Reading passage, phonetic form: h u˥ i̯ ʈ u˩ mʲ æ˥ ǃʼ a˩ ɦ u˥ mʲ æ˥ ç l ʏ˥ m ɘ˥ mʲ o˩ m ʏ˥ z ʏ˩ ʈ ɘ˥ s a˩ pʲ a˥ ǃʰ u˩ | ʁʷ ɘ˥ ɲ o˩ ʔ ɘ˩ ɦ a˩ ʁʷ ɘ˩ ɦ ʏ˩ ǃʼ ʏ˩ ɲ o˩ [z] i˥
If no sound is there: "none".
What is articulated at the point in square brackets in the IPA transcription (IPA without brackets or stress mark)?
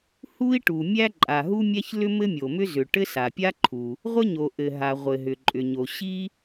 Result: ɕ